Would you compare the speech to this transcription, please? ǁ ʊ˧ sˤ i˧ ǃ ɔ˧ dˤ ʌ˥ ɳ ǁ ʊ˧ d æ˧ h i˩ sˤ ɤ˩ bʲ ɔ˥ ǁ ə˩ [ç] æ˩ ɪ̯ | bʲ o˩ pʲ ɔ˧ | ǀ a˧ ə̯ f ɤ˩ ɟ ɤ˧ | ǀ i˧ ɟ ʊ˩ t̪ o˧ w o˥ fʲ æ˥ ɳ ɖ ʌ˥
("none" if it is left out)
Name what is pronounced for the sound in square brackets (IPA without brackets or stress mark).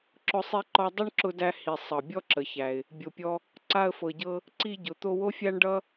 ç